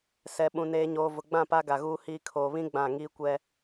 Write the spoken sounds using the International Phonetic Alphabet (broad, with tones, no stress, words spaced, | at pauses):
sɛ˨ɓũ˨ neː˨ɲoː˨ vʊ˨ɡ͡bã˦˨pa˦ ɡa˨ɣuː˦hiː˦ kʰoː˨βĩ˦ ɡ͡bã˦˨ ŋiː˦kʷɛ˦